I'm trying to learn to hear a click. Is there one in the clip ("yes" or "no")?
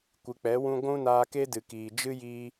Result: no